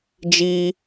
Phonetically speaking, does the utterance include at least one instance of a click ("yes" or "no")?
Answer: no